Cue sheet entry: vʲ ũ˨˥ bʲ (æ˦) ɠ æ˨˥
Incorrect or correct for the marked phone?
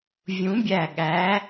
incorrect: æ˧˩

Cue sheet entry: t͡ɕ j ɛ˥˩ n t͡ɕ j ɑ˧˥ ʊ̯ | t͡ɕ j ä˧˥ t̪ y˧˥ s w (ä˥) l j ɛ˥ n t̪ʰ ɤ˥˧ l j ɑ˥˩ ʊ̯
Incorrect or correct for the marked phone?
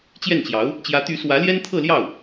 incorrect: ä˧˥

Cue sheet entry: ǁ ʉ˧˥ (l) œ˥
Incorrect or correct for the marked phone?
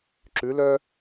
correct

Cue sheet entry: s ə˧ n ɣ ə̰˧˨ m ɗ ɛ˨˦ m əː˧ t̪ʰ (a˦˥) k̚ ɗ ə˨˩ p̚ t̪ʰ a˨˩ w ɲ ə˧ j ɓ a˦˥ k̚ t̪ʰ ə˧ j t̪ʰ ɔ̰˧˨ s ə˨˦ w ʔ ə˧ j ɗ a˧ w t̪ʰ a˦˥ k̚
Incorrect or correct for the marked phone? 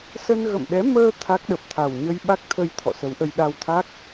correct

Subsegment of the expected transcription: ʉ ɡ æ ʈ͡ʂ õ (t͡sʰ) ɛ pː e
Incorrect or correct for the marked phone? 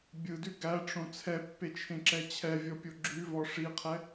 correct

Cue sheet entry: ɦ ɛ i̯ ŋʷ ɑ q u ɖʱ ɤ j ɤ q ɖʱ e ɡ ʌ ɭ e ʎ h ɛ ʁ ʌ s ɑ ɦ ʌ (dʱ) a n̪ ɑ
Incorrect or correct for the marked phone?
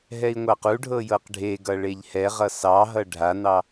incorrect: ɖʱ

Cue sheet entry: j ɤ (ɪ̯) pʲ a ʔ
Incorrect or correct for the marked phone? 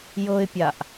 correct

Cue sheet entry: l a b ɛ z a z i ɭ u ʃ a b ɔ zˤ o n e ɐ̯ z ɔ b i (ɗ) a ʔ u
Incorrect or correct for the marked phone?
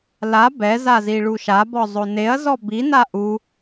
incorrect: n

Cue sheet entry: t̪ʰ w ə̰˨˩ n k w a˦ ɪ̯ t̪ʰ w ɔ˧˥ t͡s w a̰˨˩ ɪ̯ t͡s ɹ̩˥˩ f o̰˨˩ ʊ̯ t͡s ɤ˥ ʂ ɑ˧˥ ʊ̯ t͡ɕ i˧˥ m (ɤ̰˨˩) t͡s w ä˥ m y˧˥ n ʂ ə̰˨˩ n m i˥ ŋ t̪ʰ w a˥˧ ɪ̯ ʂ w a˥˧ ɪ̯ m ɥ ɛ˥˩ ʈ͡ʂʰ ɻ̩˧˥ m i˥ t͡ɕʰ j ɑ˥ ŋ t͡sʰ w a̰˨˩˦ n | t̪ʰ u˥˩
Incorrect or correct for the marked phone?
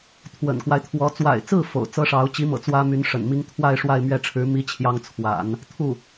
correct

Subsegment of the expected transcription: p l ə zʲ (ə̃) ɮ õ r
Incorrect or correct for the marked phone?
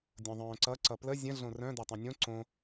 correct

